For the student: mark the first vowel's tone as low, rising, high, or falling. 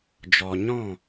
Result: low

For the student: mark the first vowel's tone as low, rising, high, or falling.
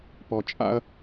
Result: low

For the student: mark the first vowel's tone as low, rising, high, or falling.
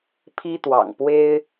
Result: high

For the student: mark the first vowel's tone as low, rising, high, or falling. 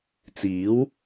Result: rising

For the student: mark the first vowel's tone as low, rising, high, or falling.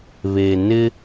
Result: low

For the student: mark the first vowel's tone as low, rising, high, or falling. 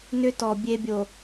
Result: high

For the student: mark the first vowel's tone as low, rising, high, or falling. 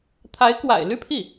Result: rising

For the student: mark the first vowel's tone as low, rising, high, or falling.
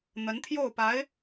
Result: rising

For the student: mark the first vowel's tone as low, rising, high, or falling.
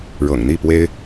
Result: low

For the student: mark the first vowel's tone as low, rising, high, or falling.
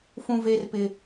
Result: high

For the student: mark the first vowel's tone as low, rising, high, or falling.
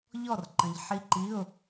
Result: falling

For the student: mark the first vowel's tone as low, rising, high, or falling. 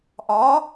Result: rising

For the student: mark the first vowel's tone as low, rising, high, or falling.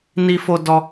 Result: high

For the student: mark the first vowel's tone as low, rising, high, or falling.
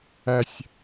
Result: low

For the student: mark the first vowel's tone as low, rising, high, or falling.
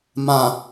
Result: low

